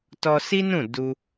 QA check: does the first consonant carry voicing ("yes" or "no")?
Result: no